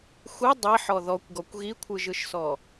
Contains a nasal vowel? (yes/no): no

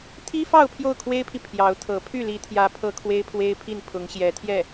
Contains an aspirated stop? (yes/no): yes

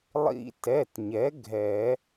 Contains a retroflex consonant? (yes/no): no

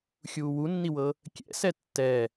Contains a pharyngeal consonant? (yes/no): no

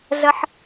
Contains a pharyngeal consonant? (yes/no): yes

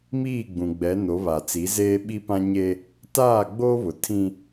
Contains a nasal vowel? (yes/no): yes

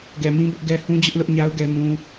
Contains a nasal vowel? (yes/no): yes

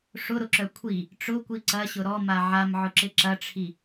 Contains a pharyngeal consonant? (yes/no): yes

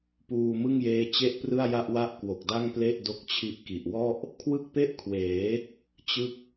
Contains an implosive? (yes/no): no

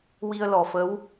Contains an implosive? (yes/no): no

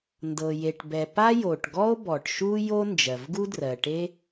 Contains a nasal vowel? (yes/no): no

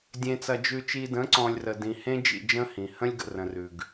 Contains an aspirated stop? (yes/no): no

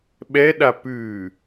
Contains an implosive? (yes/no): yes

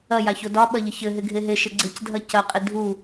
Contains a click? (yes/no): yes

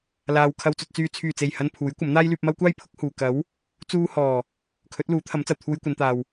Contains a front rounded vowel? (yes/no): yes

